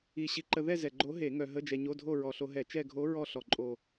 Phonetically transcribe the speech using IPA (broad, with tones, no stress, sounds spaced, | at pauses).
i˨˩ ɕ i˧ ǃ ə˧ ð ɛ˥˧ z ɛ˨˩ ɡ͡ǃ o˧˥ ɦ e˧˩˧ ŋ œ˧ ɦ ə˧˥˧ d͡ʒ ɛ˧ ɲ o˧˥˧ dʱ o˥˧ ɹ ɔ˨˩ ɬ o˧ ɦ ɛ˧˩˧ t͡ʃ ɛ˥˧ ɡʱ o˧˥ ɹ ɔ˥˧ ɬ ɔ˨˩ ǃʼ o˨˩